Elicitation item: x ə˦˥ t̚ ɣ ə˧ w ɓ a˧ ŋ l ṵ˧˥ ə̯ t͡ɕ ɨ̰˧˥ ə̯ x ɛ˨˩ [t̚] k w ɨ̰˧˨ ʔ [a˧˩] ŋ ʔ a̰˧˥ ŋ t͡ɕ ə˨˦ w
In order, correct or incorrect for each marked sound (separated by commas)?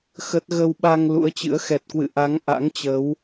correct, incorrect